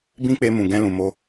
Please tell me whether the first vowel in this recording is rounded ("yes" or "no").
no